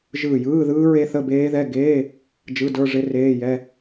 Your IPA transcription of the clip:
ʒ ɯː˧˩ j ɯː˧˥˧ ð ɯː˦˥ ɹ e˦˥ θ ə˧˥˧ b eː˦˥ ð ɛ˧˥˧ ɡ eː˧˥˧ | d͡ʒ ɯ˧˥˧ d ə˞˧˥˧ ʐ ɪ˦˥ r eː˧˥˧ j ɛ˧˥˧

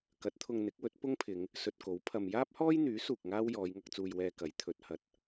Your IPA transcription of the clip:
k ɐ˨˥ t̚ t̪ʰ ʊ˧ ŋ n̪ ɪ˨˥ k̚ w ɵ˨˥ t̚ p ʊ˥ ŋ pʰ ɪ˨˧ ŋ | s ɵ˧ t̚ k o˨˥ w pʰ ɐ˨ m j aː˥ p̚ h ɔː˥ j n̪ yː˨˥ s uː˨ k̚ ŋ aː˥ w j ɔː˨˧ j ŋ ɐ˧ k̚ t͡s uː˧ j w ɛː˧ k ɐ˨˥ j t̪ʰ ɵ˨˥ t̚ h ɐ˨˥ t̚

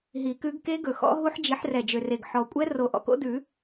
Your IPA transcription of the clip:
ɦ i˨˩˦ k ʉ˨˦ ɡ k e˦˥ ɡ ɵ˨˩ x ɔ̰˦˥ ɦ u˦˥ ħ d͡ʒ i˨˦ ħ r ɛ˨˩ d͡ʒ ø˨˩ r e˨˩ ɡ ħ ɔ˨˩ kʷʼ ɛ˦˥ r o˨˩˦ ʔ ɔ̰˨˩ k o̰˦˥ d ʉ˨˩˦

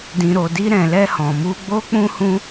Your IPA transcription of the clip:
d ĩ˨ ɾ o˨ d i˧ ɾ ɛ̃˨ l ɛ˧ h ɔ̃˨ m u˧ ɡ͡b o˧ k͡p ũ˧ h ũ˧

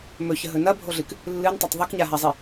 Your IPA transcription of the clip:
m ɵ ç ə ɦ ɵ n ɐ bʱ o ɮ ɨ k | lː ɨ n tˤ ɵ tˤ ðˤ ɵ k ɲ a ɦ a zˤ i

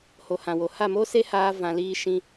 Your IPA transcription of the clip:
h o˨ h ã˨ w o˨ h a˦˨ m o˦ s e˦ h aː˧ v ã˧ l iː˦ ʃ ĩ˧

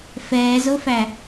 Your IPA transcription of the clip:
f ɛː z o f æ

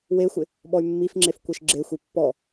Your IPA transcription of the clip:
w e xʷ ɪ | ɓ ɔ y̯ mː i f ŋ͡ǁ e f kʷ e ʃ ɡ͡ǁ e xʷ i pː ɔ

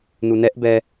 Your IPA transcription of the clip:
n u n ɛ ʔ b ɛ

